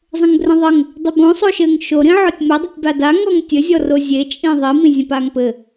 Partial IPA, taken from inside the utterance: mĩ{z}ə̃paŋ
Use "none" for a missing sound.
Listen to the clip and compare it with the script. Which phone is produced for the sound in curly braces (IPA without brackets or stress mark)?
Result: zʲ